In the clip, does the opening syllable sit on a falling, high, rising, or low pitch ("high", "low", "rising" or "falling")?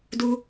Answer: high